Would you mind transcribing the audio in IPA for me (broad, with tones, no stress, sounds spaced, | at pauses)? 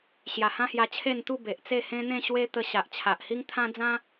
ɕ j a˨˩ h ã˦ h j a˧ t͡ɕʰ e˥˧ n t̪ u˥˧ b e˨ ʔ t͡s e˥˧ h ẽ˦ n̪ ẽ˥˧ ɕ w e˦ t̪ ə˧ ɕ a˨ ʔ t͡ɕʰ a˨ ʔ h i˦ ŋ t̪ʰ ã˦ d͡z ã˦